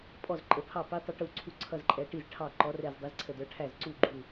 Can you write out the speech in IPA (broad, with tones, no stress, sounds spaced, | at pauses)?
pʼ ɔ˥˩ z ǃʼ ə˨˥ pʰ ɑ˥˩ p i˨˥ tˤ ʊ˨˥ ʈ u˧˩ ǀʰ u˥˩ ǀʰ ʌ˥˩ z ǃʼ ɛ˨˥ ʈ i˥˩ z ʈʰ ɑ˥˩ ǃ ɔ˨˥ r ɛ˧˩ z dˤ ɛ˨˥ z ǀʰ ə˧˩ d ə˞˨˥ ʈʰ æ˥˩ z ǀ u˥˩ ɡ͡ǃ u˧˩